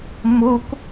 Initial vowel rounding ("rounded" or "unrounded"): rounded